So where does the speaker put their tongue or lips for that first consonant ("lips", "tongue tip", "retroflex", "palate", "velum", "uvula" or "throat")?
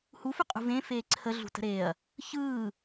throat